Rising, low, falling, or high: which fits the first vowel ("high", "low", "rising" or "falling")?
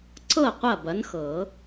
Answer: falling